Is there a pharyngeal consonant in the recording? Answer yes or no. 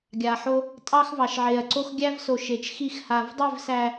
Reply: yes